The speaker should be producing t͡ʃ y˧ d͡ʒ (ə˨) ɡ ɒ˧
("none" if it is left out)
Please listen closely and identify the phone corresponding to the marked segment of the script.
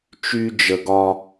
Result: ə˨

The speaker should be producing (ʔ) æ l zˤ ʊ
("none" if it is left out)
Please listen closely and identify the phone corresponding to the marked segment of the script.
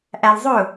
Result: ʔ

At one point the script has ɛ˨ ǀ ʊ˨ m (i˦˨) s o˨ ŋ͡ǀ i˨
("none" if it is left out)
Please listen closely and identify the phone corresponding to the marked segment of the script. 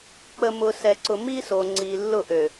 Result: i˦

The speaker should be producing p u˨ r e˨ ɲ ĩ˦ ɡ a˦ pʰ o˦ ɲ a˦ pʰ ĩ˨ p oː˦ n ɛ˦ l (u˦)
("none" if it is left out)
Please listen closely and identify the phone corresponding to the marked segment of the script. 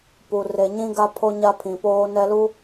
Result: u˦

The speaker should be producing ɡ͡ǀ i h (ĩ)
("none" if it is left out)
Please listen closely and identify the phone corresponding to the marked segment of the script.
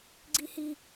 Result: i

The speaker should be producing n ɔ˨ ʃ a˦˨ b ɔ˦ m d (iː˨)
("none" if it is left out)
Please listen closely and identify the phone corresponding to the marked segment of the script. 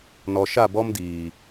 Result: iː˨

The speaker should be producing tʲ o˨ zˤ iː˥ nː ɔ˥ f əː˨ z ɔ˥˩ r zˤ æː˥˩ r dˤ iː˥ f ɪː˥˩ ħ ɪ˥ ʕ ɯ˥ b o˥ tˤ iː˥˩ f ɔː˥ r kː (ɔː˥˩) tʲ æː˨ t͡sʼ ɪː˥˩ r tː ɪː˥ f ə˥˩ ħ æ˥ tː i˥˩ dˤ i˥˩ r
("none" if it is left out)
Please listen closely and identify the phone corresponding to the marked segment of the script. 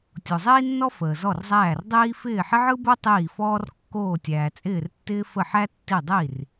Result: oː˥˩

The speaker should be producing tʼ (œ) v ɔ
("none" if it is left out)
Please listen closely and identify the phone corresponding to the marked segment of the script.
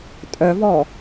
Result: œ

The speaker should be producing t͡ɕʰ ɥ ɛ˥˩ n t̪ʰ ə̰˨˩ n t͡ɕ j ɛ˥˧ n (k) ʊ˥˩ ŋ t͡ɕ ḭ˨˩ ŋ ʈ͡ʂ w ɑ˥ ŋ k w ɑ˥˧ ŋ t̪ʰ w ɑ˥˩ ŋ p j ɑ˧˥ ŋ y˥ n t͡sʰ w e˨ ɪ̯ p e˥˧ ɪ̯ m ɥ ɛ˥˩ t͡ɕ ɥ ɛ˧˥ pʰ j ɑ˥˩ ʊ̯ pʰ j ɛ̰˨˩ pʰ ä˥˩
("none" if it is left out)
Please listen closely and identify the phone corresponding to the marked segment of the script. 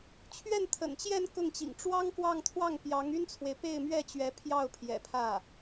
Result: k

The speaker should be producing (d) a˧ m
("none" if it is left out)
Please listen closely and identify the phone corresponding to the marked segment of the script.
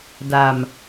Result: d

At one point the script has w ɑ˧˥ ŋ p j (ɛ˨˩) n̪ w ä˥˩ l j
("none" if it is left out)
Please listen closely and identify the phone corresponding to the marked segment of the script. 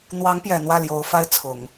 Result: ɛ˨˩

